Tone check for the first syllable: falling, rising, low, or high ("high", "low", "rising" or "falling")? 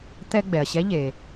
high